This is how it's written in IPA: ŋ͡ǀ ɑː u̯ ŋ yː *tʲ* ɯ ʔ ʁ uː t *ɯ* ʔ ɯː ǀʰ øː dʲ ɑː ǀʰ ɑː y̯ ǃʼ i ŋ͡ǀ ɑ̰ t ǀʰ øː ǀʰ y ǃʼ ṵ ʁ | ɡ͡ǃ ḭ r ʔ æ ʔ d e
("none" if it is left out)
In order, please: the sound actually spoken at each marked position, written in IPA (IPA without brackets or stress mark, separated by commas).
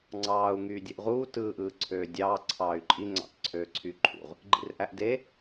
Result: dʲ, ɯː